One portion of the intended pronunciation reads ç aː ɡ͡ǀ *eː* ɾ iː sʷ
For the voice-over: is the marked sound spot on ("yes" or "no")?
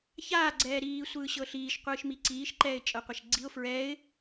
no